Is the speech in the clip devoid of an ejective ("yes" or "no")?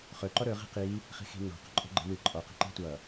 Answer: no